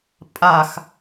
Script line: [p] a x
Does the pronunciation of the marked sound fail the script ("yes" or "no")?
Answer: yes